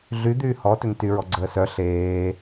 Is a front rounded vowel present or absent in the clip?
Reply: present